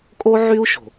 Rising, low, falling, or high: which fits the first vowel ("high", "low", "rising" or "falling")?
high